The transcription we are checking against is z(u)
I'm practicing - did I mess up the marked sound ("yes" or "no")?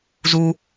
no